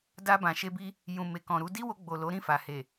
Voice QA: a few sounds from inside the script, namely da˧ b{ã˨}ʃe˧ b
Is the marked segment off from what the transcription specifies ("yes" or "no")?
no